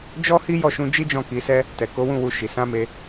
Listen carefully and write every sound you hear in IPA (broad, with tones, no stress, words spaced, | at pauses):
d͡ʒɔ˦hi˦ jɔ˦˨ʃũ˧d͡ʒi˦d͡ʒɔ̃˦˨ ki˧sɛ˦ | tɛ˨ko˨˦wũ˦˨wu˧ ʃi˨ sã˨˦me˧